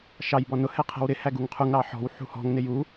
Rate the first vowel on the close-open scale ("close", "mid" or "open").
open